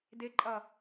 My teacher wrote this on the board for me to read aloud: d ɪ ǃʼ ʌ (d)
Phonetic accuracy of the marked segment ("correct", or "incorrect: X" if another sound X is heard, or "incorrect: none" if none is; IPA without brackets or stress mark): incorrect: none